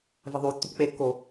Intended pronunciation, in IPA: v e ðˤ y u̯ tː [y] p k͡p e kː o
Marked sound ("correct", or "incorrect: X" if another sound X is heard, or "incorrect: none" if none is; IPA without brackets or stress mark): incorrect: u